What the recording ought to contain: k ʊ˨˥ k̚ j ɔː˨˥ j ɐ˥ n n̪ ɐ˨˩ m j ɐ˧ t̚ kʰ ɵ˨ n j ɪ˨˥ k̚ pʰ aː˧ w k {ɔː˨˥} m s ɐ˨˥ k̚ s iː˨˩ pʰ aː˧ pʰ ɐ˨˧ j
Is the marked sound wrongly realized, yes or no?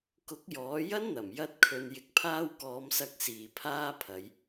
yes